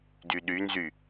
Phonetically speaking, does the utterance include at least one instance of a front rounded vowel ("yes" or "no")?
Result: yes